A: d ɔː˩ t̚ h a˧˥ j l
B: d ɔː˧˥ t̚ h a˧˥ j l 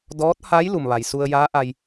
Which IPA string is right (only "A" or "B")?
B